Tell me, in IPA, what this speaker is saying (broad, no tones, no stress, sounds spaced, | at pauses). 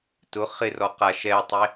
t ʊ χ ɪ r ɔ q a ʃ ɛ tˤ e